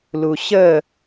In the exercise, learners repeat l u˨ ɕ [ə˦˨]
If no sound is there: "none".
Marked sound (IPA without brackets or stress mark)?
ə˦˨